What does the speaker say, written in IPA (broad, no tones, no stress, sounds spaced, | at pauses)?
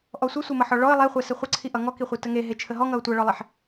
ʔ ɔ sʷ ə sʷ e m ʌ ħ ɔ ɭ ɔ ə̯ lˠ e χʷ ɛ s ə χʷ ʌ ǀʰ i ʔ ʌ ŋ ɔ k i χʷ i t ə ŋ e ɦ e t͡ʃʰ ə ɦ ɔ ŋ ʌ ʊ̯ tʷ ʌ ɭ ɔ lˠ e ħ